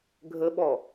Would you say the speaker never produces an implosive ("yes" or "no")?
no